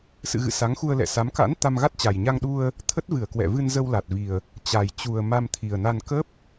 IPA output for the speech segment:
sɨ̰˧˨ɣɨ̰˧˨ sa˨˦ŋxu˧ə̯lɛ̰˧˨sa˨˦m ka̰˧˥n t̪a˧mɣa˦˥t̚ t͡ɕa˨˩jɲa˧ŋ ɗu˧ə̯ | t̪ʰə˦˥t̚vɨ˧˩ə̯ kwɛ̰˧˨vɨ˧n zə˧wla˨˩t̚vi˨˩ə̯ | t͡ɕa˨˩jt͡ɕu˨˩ə̯ ma˧mt̪ʰi˨˩ə̯na˧n kə˦˥p̚

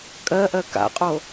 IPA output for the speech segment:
kʼɜʔɜ ka̰qʼo

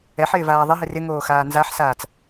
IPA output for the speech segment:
ɛħɪːvaː ðˤɪɦɪ rɪŋoːxaː nzaħsaːt͡s

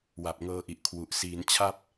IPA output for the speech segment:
wa˨˩p̚ŋɤː˧ʔi˨˩ʔ kʰwu˨˩ʔ siː˩˦n t͡ɕʰa˥˩p̚

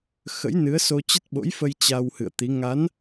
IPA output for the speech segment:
xə̰˧˥jnɨ˨˦ə̯so˧ t͡ɕə˦˥t̚ɓo̰˧˥jfə˧j t͡ɕa˧whɨ̰˧˨ə̯t̪i˨˦ ŋa˨˦n

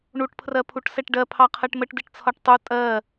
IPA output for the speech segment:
ɳuʈpʰrɜpʰuʈsɛʈ ɖɜpʰɑqʰɜʈ məʈdiʈt͡sʰɒʈ tˤu tʼɜ

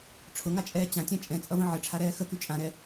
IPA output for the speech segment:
ʈ͡ʂʰʊŋat͡ʃʼɛː t͡ɕãtʲã t͡ʃʼɛ̃t͡sʼʌvə̃ ʕəʈ͡ʂʰaɾɛː xəky t͡ʃʼãɾɛ

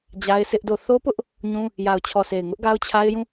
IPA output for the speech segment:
d͡ʑa˦ɪ̯sɪ˦ʔdo˦˨ θo˦pʊ˦ʔ | ɲũ˦ | ja˨ʊ̯t͡ɕʰɔ˨sʰe˨ɪ̯ ŋʊ˦ʔɡa˦ʊ̯t͡ɕʰa˦ɪ̯jũ˦˨

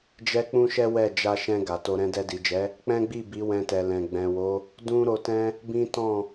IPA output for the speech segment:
d͡ʒɛ˦k͡pũ˦ʃɛ˦ wɛ˦˨d͡ʒa˧ʃɛ̃˧ ɡa˨to˧ ɾɛ̃˧dɛ˧di˨d͡ʒɛ˨˦ | k͡pɛ̃˦ɡ͡bi˦˨ bi˨˦wɛ̃˧tɛ˨ lɛ̃˨ɡ͡bɛ̃˨wo˨˦ | dũ˦ɾo˧tɛ̃˦ | bĩ˦tɔ̃˦˨

